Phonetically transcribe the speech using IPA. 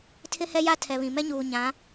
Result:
tʰ ɪ˦ h ɛ˦ j a˦ tʰ ɛ˨ β ĩ˨ m ɛ˦ ɲ uː˨ ɲ ã˨˦

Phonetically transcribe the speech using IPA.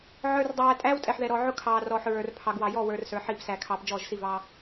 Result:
ʕ ə˞˨ r dˤ æː˨ tʼ æː˦ w tʼ ɛ˨ ħ ð ɛ˨ ɾ ɔː˨ ʕ ʊ˦ kʰ ɑː˨ r ɔː˨ ħ ɹ ə˞˨ r pʰ ɑ˨ ɡ w ɑ˨ j ɔ˦˨ w ə˞˨ r s ə˞˨˦ ħ iː˦˨ p s æː˨ kʰ ɑː˨ p d͡ʒ ɔː˦˨ ʒ s i˦˨ v ɑː˦

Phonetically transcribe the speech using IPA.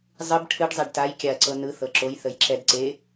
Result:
zˤ ɨ b ʈʰ ɨ ɖ zˤ e ɖ t a j kʲ a ɐ̯ ǀ ɤ n ɯ θ ɤ ǁ o j θ ə j ǁ ɛ d ǀ e

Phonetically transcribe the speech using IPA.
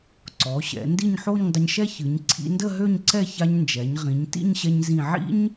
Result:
ǀ ɔ˩˧ ɕ ɛ̰˩˧ n d i˥˧ ɲ ħ o˥˧ ɲ dˤ ə˧ ɲ ʃ ɛ˥ ç ɨ˩˧ ɲ ǀʰ ḭ˧ n d ə˥˧ ɦ ø˥˧ ɲ ǀ ɛ˥˧ ç a˧ ɲ n d͡ʒ ɛ˩˧ ɲ ʁ ĩ˩˧ ɲ t ḭ˥˧ ɲ ɕ ɛ˧ ɲ z ĩ˧˩ ʕ ḭ˥ ɲ

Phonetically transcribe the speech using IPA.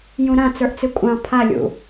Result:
j ũ ɾ ã t͡s ə˞ ʔ t͡s ɨ kʷʼ ɑ̃ pʰ a lʲ ṵ

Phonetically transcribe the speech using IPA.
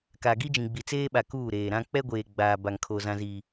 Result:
k a˨ ɡ i˦ d͡ʒ ĩ˨ ɡ͡b i˨ t͡s eː˦ ɓ a˨ k uː˦˨ ɾ eː˨ ɾ ã˦ k͡p ɛ˦ ɡʷ eː˨ ɡ͡b aː˨ b a˨ ŋ kʰ o˨ z ã˨ z iː˨

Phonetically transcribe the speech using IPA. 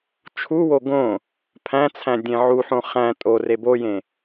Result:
t͡ʃʰ u w o ɡ õ | pʰ æ̃ t͡sʰ æ̃ dʲ ẽ ʕ u ħ õ χ æ̃ tʼ o r e b o j ẽ

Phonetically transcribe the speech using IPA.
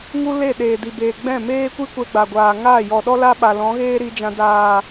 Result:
ŋ u˦ l e˦˨ ɗ eː˨ d i˨ b eː˨ ɡ͡b ɛ̃˦˨ m eː˦ kʷ i˦ kʷ ɛ˧ ɡ͡b a˨ ɡʷ aː˨ ŋ aː˦˨ j ɔ˨ ɗ ɔ˦ l a˦ ɓ a˨ l ɔ̃˨˦ ɣ eː˦ ɾ i˧ d͡ʒ ã˧ d aː˨

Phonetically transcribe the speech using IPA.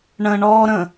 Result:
ɳ ə̃ ɳ ɔ ɾ ə̃

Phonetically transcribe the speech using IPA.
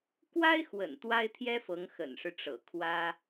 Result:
k w a˥ ɪ̯ x w ə̰˨˩ n t̪ w a˥ ɪ̯ t̪ʰ j ɛ˥ f ɤ˧˥ ŋ x ə̰˨˩ n ʂ ɻ̩˦ ʈ͡ʂ ɤ̰˨˩ kʰ w ä˥

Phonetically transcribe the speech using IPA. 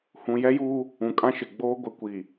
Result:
h ũ˨ j ɛ˦ j uː˦ | ũ˨ kʼ ã˦ ʃ ɪ˨ ɡ͡b oː˦ ɡʷ ɪ˨˦ kʷ i˨

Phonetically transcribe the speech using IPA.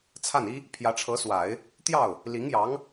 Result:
t͡sʰ a˥˩ n i˥ | pʰ j ä˧˥ ʈ͡ʂʰ ɤ˧˥ s w a˨˩˦ ɪ̯ | t̪ j ɑ˥˩ ʊ̯ | l i˧˥ ŋ j ɑ˧˥ ŋ

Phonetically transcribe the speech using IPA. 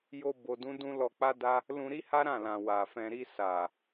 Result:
j o˧ b o˧ d ũ˦ d ũ˦ l ɔ˧ k͡p a˦ d a˦ | l ũ˧ ɾ i˦ h a˦ ɾ ã˦˨ l ã˨ w a˨ f ɛ̃˧ ɾ i˧ s a˨

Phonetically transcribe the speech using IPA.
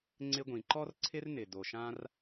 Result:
ŋ͡ǀ ɪ˧ ɡʷ ĩ˩ ǃ ɔ˥ r ǀʰ ɪ˥ r n ɪ˩ d o˩ ʃ ã˧ r

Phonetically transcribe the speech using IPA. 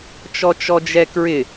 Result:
t͡ʃ ɔ t͡ʃ ɔ d͡ʒ ɛ k ɹ ɪ

